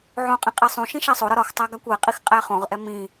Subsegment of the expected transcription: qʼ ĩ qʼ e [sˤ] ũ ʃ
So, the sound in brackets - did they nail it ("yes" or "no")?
yes